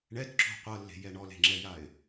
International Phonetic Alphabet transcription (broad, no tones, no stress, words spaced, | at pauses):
ɳɛtǁo̤ qʷɤlːe̤jɛ ɳɔle̤ŋ͡ǁɛjaɪ̯